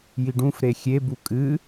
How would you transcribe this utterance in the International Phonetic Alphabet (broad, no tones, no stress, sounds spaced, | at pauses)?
j i ɖ ũ f ɾ e xʲ e b u kʼ ɨ